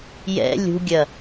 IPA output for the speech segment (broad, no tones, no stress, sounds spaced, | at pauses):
j ɛ̰ lʲ ṳ ɡʲ ɐ